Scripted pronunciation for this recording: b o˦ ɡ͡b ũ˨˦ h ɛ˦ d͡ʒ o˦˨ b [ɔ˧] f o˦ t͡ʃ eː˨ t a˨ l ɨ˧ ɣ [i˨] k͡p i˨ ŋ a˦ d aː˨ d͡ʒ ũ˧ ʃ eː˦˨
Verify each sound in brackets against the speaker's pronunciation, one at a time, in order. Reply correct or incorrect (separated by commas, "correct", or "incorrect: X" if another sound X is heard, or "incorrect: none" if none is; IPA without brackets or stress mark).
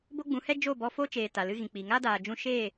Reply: correct, incorrect: ĩ˨